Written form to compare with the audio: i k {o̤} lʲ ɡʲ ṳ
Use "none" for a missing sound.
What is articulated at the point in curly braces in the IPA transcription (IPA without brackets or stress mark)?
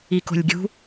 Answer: o̤